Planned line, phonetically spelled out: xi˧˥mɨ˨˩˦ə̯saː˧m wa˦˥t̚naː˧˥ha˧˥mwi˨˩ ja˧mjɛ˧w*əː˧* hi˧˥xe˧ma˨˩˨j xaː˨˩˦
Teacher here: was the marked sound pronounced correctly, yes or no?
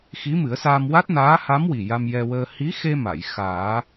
yes